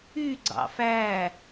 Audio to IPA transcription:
y ɡ͡ǀɑ̰fæ

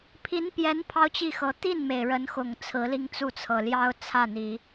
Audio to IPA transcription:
pʰi˧˥npjɛ˧˥n pʰɑ˥ʊ̯t͡ɕi˥˩xɤ˧˥ t̪i˥˩nme˩ɪ̯ ɻə˧˥nxʊ˨˩ŋ t͡sʰɹ̩˧˥li˥˧ŋ t͡su˥˩t͡sʰɤ˨˩ ljɑ˥ʊ̯t͡sʰä˥˩n̪i˨˩˦

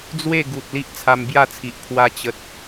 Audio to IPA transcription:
d͡zwe˥˧ɡu˨t̚ li˦ʔt͡sʰa˧mbja˥˧t͡sʰi˨ʔ pʰwa˧t͡ɕə˨t̚

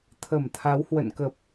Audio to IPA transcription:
t̪ʰə˧˩mt̪ʰa˨˦whwə̰˧˨nkə˨˩p̚

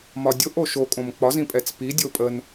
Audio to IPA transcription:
mɒdʲoʔ oʃokʼõm k͡pɒzĩpʼɛt͡s pi dʲopʼən

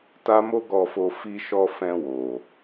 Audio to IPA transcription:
ta˦mo˦ɡɔ˧fo˧ fi˧ʃɔ˧fɛ̃˧ wo˨

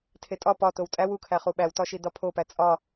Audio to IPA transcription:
tʰetʼɒ pɒtow tʼæw ukʰæχu ɓæwtɒʃi dɒpʰopæ t͡sʼɒ

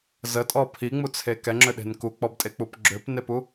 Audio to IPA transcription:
zətʼɔ pʰiŋ͡mut͡sʰe kɛŋ͡ǁøɗe̤n kuk͡pɔbtʼek͡pup ɡ͡ǁøpnepu

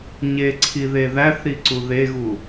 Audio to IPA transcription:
ɲeǀʰi ðeðæθɾiǀu ðeɣu

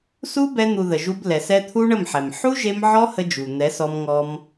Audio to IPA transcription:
su˦bɛ˧ n̪u˨ ðə˨ʒu˧b lɛ˨sɛ˧t̪ʰu˦ɳə˦˨m ħɛ˨m ħu˦ʒe˧m ʕɔ˦hə˧d͡ʒu˨ n̪ɛ˨˦sɔ˧mŋɔ˧m

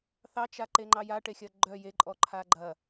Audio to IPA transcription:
θɑt͡ʃaǃeŋ͡ǃɑ jaʈexʲɐ ɡ͡ǃœ jeǃʼɔǃʰa ɡ͡ǃɐ

